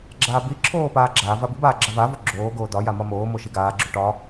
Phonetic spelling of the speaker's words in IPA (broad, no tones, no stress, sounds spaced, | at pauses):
ɡ͡ǁ aː b i ǁʰ oː p aː ɡ͡ǁ aː v a b i b aː ɡ͡ǁ a v a v o ɡ͡ǁ oː ɡ oː d ɒ j a m ɒ m oː m o ʃ i ɡ aː ɡ͡ǁ o ʈ ɒ